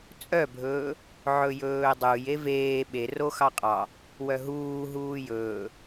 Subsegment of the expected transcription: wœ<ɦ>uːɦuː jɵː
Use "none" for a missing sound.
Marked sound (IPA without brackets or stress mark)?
ɦ